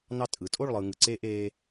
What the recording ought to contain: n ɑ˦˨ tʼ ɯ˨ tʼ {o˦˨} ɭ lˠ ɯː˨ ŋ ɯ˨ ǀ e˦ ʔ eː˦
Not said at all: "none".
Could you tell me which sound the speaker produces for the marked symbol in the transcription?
o˦˨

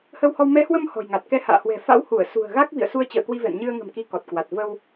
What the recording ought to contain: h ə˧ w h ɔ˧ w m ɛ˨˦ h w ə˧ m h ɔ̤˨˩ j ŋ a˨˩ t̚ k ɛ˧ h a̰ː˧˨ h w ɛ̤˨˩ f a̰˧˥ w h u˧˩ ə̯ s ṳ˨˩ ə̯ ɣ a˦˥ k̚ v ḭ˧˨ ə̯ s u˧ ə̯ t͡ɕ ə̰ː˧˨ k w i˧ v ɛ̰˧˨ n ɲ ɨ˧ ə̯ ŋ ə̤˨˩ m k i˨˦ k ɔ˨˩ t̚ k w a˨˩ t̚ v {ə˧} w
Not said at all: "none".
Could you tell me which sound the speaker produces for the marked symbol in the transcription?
ə˧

